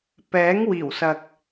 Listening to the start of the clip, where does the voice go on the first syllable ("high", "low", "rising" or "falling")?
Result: rising